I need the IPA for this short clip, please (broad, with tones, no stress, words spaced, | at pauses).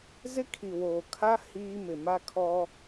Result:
zɪ˦kʰi˨woː˨ kʰa˦ hiː˦ mɪ˨ma˦kʰɔ˦